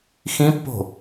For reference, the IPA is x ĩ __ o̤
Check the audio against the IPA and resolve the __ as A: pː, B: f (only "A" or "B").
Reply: A